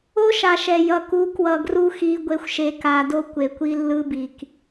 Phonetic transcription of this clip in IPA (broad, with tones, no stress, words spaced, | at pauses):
o˦ʃa˨ʃɛ˨ jʌ˨ku˨˦ kwʌ˨ɡru˦xi˨˦ ɡʷe˨xʷʃe˨ka˨do˦ kʷe˨kʷi˦lːɯ˦bi˨k